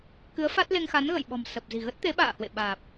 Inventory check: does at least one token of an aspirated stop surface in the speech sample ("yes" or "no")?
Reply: no